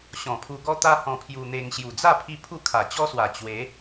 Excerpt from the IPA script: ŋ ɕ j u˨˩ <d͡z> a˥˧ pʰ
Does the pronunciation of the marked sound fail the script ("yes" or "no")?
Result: no